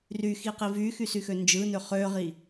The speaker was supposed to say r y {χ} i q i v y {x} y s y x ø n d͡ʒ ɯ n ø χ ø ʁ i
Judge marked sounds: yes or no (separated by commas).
no, yes